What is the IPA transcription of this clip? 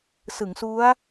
s ɯ˩˦ ŋ s u˦˥ a̯

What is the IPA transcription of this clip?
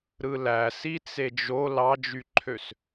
ɾ ɯ l æ s i t͡s e d͡ʒ o l ɑ d͡ʒ y ǃʰ ø s

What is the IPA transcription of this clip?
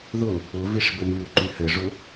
ð ʊ | ʊ v i ʂ b ɘ m y u̯ ǃ y h ɘ ʐ ʊ

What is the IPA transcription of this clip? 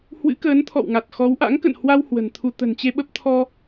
h w ɨ̰˧˥ k əː˨˦ n t̪ʰ ɔ̰˧˨ w ŋ a˨˩ t̚ x ɔ˨˦ w ʔ a̰˧˥ ŋ k ə̰˧˨ n h w a˧ w h w ə̤˨˩ n t̪ʰ u˧ t̪ ə̤˨˩ n t͡ɕ e˧ ɓ ə˦˥ p̚ t̪ʰ ɔ˧

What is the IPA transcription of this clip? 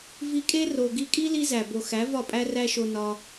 v i˧ kʼ e˦ r o˨ ɡ i˧ kʼ i˦ l i˦ z æ˨ b o˨ x æ˨˦ v ɒ˦˨ pʼ æ˦ r æ˦ ʃ o˧ n ɒ˧

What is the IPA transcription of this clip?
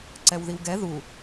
ǀ ɛ w ð i w ɡ ɛ ð u

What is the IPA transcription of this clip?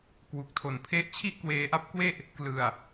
k w u˨˩ k̚ tʰ o˨˩ n pʰ e˦˥ ʔ t͡ɕʰ i˥˩ ʔ k w eː˧ ʔ a˦˥ p̚ k w e˥˩ ʔ | k l ɯ˨˩ a̯

